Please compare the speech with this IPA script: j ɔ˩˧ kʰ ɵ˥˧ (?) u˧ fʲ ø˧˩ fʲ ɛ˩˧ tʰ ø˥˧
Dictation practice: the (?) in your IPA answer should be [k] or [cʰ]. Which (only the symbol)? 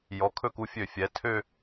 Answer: k